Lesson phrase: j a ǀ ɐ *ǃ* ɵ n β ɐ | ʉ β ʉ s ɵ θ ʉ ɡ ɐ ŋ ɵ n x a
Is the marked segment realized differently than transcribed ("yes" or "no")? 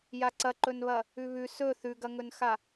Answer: no